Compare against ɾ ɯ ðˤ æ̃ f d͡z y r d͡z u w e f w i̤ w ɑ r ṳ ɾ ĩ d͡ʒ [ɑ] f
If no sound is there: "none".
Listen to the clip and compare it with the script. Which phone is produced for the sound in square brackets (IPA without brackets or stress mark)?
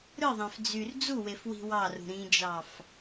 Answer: ɑ